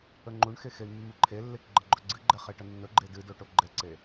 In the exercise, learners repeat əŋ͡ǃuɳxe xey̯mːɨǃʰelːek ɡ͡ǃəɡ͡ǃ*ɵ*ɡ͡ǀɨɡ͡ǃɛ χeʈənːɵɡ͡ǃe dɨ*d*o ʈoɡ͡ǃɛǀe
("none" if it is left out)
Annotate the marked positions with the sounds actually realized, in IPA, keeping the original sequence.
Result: ɵ, d

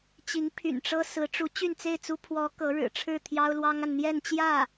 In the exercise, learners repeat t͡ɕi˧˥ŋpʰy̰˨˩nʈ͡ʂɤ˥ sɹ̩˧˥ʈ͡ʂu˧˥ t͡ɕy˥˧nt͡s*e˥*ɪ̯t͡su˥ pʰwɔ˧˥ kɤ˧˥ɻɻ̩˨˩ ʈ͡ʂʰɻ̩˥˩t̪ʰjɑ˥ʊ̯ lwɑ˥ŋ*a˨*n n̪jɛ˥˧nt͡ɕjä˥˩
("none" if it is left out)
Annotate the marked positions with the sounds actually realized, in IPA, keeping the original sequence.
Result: e˥˩, a˨

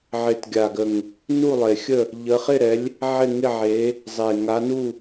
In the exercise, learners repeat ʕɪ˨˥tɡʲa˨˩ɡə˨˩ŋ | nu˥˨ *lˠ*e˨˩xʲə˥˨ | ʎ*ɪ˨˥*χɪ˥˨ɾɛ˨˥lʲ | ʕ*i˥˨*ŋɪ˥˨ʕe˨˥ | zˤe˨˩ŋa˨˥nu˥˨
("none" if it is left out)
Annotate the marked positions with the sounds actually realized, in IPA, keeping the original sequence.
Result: lˠ, ə˨˥, ɪ˥˨

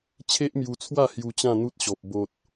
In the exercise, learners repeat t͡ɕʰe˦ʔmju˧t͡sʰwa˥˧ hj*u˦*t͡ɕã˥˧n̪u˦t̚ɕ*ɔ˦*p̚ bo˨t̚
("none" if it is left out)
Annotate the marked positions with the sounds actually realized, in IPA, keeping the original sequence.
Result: u˧, ɔ˨

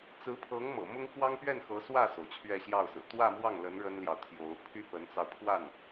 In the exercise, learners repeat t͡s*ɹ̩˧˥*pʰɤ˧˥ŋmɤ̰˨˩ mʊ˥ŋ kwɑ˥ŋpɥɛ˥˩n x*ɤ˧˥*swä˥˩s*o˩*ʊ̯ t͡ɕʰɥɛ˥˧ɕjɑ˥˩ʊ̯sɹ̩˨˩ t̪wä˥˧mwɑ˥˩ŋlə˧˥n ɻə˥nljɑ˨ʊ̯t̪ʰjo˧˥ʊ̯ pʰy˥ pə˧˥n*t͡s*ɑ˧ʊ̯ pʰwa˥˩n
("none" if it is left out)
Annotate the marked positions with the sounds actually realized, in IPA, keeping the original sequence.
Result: ɹ̩˧˥, ɤ˧˥, o˩, t͡s

